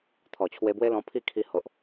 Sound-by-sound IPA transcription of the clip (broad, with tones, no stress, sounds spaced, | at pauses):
t̪ʰ ɔ˨˩ t͡ɕʰ w e˧ b w e˦ l ɔ̃˧ pʰ i˥˧ kʰ i˧ h o˨ ʔ